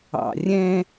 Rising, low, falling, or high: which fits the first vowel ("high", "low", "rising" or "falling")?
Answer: low